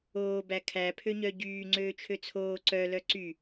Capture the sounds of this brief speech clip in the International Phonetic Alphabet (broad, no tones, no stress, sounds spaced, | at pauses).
oː b æ kʰ æ pʰ ø ɲ œ ɟ yː ŋ͡ǀ øː t͡ʃʰ ø t͡sʰ oː ǀ œ l œ ǀ y